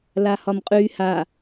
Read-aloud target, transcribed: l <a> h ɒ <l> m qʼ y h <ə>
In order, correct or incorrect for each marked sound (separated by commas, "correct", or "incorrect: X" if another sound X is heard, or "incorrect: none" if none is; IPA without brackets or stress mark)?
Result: correct, incorrect: none, incorrect: a